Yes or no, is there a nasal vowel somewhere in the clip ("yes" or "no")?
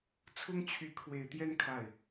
no